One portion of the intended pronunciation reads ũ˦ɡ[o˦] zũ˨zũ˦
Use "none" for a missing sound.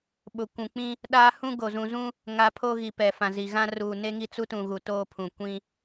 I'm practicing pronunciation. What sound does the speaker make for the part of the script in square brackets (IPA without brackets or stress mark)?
o˨